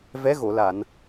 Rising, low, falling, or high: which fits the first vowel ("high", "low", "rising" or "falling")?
rising